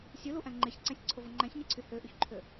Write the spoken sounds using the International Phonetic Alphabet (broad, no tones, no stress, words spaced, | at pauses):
sʲuluʔæ̃ ŋ͡ǃeçǀæ̃sʲǀʰovo ŋ͡ǃæ̃çɲeǀʰy høʔyçǃʰø